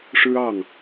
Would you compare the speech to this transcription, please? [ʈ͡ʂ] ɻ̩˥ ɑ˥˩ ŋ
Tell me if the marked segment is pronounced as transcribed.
no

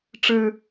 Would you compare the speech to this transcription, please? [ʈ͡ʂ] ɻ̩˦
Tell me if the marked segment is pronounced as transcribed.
yes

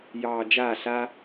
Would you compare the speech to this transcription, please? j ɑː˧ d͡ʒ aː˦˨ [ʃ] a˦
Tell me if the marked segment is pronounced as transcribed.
no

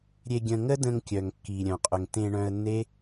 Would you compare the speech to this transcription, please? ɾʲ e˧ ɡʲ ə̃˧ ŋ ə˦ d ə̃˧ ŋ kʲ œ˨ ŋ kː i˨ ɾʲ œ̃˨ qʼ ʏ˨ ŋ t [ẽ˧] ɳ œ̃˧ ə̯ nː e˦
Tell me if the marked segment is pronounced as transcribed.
yes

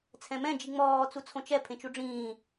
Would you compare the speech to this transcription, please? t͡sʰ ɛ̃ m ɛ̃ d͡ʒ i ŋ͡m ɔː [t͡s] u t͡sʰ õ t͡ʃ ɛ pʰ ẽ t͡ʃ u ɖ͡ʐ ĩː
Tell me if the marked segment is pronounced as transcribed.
yes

